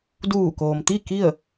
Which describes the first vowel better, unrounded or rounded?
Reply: rounded